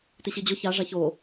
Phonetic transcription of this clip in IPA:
t i ɕ i d͡ʑ ʊ ç a ʐ a ç o

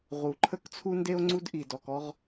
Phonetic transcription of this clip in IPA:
ʁ u˨ ǃʰ ə˦ k t͡sʰ u˦ n d e˦ o̯ ŋ͡ǀ u˦ d ʔ i˨ d ɔ˨ k ɔ˦ ʁ

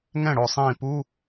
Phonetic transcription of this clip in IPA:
ŋ ɛ̃˥˩ ɽ o˧˩ sˤ ĩː˧˩ p u˧˥˧

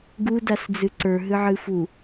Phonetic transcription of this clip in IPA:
ɡ u d a s d͡z ɨ ǀ ə˞ ɦ ɨ ʕ ɨ f u

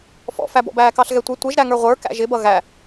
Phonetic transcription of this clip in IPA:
f ɔ̰ f æ b ɔ̰ b æː k ɑ ɬ ɣ ɛ tʷ ɪ tʷ ɪ ʒ ɾ æ ŋ ə˞ ʁʷ ə˞ k æ̰ ʒ ɪ b ʌ ɣ æ

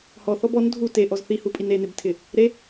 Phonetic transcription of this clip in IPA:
h ɔ θ ɔ b ɔ n dʱ u t e ʔ ɔ z θ i h u pʼ i n e n ɪ b tʰ ɪ | ɾ e

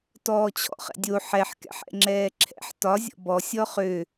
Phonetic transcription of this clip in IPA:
t ɔː t͡ɕʰ ɔ̰ χ ɛ̰ dʲ o ħ ɛ ħ k ɛ̰ ħ ɛ̰ ŋ͡ǁ ɛː ǁʰ ɛ̰ ħ t ɒ zʲ ɔ̰ b ɔ sʲ ɔ χ ø

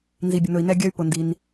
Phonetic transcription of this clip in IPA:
n z i˩ bʲ ʊ˩ n ɵ˩ i̯ n ɛ˧ ɡʲ œ˧ y̯ p ʊ˩ n d i˩ n

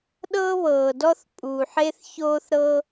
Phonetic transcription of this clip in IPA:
ɗ ɤ˥ β ɤː˩ d ɔ˥ θ pʼ uː˩ ħ e˥ θ ç oː˥ θ ɾ ɤ˥

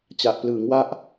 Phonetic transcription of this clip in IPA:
t͡ɕ a˨˩ ʔ p l ɯː˩˦ ŋ w a˦˥ ʔ

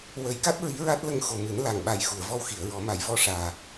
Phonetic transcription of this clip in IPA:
w ə˨˩˦ j k a˦˥ t̚ ɹ i˧˥ ɹ a˦˥ t̚ l ə˧ ŋ x o˨˩ m ɨ˨˩˦ n l a˨˩ ŋ ɓ a˨˩ j x u˨˩˨ ə̯ v ɔ˧ w x i˨˩˨ ə̯ ɹ ɔ˨˩˦ m a˨˩˦ j v ɔ˧ ʂ aː˨˩

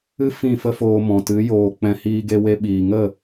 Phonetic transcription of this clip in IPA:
ɨ˦ f ĩ˦˨ f ə˦ f oː˧ m ɔ̃˨ t ɨ˨˦ j oː˨ k͡p ɛ̃˧ h iː˧ ɡ e˧ w e˧ ɓ iː˨ ŋ ə˦˨

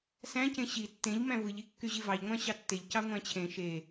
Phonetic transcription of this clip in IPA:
s æ̃ c ẽ ɕ i tː ẽ ʎ m æ̃ v ɯ ʎ i kː y ʑ i v ɑ ʎ ŋʷ æ̃ ɕ ɑ tː e ʎ c ɑ ŋʷ æ̃ t͡ɕʰ ẽ ʃ e

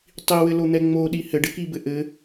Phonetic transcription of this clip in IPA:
tˤ i w ɘ l o n̪ ɛ ŋ͡m o ɗ i h ɘ ɖ ɘ k i b ɘ ʔ ɘ

